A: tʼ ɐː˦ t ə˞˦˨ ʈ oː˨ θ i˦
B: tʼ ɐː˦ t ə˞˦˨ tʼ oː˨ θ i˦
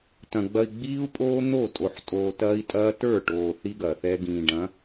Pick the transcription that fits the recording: A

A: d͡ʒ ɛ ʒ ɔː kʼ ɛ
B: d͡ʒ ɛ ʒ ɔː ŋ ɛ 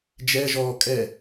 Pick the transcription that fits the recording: A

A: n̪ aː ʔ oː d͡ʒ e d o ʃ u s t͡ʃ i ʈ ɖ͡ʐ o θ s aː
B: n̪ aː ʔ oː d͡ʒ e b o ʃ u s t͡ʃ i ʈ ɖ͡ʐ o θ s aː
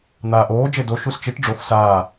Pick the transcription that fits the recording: A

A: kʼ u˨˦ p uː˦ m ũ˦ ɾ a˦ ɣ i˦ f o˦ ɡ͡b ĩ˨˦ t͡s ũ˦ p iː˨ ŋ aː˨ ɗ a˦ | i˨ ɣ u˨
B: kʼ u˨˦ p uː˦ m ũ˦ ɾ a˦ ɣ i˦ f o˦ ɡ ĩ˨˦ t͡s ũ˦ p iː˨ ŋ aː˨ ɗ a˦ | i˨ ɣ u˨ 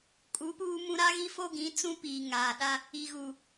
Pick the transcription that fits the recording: B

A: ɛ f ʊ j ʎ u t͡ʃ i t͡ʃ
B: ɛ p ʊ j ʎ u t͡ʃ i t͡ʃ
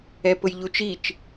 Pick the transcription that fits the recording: B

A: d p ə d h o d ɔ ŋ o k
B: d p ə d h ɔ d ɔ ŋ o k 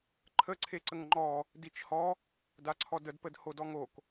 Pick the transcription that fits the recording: A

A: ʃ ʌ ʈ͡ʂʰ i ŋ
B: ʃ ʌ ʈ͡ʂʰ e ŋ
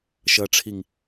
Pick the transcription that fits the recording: A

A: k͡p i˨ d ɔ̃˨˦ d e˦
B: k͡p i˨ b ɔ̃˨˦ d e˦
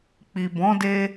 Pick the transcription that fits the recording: B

